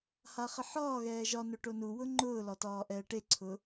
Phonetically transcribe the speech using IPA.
haχəħɒːɣɛː ʒɒ nʊʈonuwʊ ŋ͡ǃʊːlɒ tɒːʔɛːʈeǀʰʊː

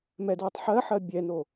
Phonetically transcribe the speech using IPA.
mɛdwɛtˤ ħɜħɜ bʲɛno

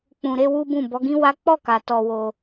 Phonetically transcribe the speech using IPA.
k͡pũ˨ɾe˧ wu˦bũ˦˨ bɔ˨˦ɡĩ˦wa˦ k͡pɔ˦˨ka˨ tɔ˧wo˧

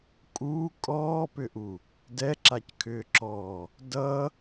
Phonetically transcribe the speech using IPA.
kʼuː kʼɔːpʏʔu | dɛǁackʰʏːǁɔː | dʌ

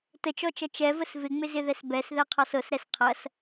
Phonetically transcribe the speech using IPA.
tət͡ʃɔt͡ʃɐ t͡ʃɛvəs vɪŋ͡mɪzɪðɛs bɛsðɛqʰɔs ɤsɾɛs qʰɐs

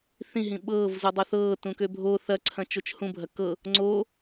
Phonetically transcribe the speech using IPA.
θĩɦĩ ɓɤːv zudˤoθɤː tũkøbʱo θɐǀʰɐ̃ t͡ʃot͡ʃhũbʱɐ kɤ | ŋ͡ǀoː

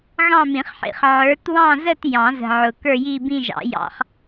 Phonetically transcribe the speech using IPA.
ɣɑ̃˥˧mĩ˨˩˦χħḭ˨˩χ ʕə˞˨˦twɑ̃˥˧zə˥˧t jɑ̃˨˩˦zə̤˨˩ ʕʊ˨˩ kə˞˥˧ji˥˧bĩ˥˧ʒɑ̰˨˩˦ jɑ̰˨˦χ

